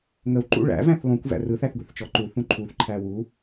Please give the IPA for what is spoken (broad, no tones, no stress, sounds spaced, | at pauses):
ŋ ə w ǃ ṵ ɭ æ̰ v æ̃ θ lˠ ũ kʷ v æ̰ r ɯ θ æ θ ɡʷ ḛ θ t͡ʃ ɔ ǃ u θ ũ ǃʰ u θ ǃʰ æ w u